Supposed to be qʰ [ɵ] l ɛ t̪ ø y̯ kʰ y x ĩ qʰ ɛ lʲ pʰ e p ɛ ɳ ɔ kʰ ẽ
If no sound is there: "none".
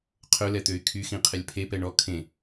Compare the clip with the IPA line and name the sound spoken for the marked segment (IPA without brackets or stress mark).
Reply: ɵ